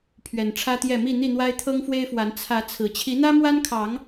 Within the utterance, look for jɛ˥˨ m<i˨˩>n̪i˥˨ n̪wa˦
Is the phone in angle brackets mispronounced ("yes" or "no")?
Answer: yes